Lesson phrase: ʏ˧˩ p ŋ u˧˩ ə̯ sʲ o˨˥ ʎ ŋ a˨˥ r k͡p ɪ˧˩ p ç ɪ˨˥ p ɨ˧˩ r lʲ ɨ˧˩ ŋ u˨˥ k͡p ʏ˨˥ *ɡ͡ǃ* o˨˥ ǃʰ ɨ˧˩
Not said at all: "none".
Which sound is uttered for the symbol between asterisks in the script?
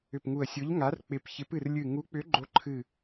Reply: ɡ͡ǃ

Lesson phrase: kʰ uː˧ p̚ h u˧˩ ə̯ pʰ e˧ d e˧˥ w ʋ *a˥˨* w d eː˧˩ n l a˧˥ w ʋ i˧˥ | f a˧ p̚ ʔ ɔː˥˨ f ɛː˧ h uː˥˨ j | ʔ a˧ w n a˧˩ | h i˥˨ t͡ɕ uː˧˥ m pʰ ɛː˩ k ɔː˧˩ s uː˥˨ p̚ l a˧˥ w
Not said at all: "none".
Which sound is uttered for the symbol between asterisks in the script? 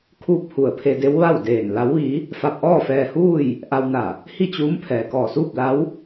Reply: a˥˨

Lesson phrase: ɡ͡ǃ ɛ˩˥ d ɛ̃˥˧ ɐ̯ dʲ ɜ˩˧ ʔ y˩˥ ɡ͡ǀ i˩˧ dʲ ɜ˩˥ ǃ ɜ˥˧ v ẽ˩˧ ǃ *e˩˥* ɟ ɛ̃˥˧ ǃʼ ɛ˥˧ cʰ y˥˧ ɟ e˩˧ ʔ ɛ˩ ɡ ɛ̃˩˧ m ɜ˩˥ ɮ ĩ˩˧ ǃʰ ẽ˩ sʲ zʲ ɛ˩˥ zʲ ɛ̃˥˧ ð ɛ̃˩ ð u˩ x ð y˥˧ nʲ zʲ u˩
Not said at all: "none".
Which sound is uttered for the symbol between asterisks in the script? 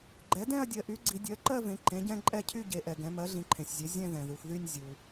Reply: ẽ˩˥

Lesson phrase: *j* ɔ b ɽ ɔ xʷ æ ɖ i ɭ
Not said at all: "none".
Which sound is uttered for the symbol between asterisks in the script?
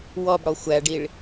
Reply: w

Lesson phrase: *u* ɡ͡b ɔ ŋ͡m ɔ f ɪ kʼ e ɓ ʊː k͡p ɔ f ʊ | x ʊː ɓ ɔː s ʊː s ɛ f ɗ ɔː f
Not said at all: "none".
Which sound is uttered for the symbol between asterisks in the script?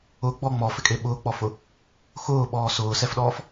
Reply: ʊ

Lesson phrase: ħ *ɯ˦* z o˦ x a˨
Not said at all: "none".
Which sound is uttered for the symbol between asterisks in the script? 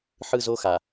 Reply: ɯ˦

